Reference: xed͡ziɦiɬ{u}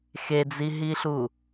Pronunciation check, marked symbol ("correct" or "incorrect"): correct